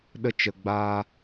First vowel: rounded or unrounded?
unrounded